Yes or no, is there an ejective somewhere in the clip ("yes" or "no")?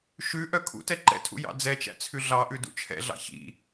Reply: no